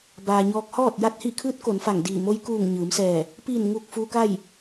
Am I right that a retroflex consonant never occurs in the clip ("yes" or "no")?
yes